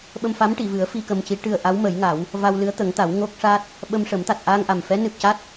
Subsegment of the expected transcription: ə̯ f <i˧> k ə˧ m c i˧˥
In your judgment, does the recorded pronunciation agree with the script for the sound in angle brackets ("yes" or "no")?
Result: yes